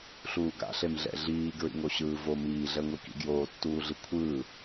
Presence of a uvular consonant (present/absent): absent